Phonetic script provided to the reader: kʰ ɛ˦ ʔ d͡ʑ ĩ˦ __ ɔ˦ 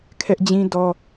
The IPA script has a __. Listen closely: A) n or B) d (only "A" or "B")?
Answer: B